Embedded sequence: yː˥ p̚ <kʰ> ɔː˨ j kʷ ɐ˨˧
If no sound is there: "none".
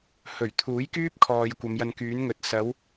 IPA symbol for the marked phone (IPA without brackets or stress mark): kʰ